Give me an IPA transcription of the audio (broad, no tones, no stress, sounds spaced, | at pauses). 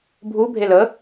bʱ u bʱ e l ə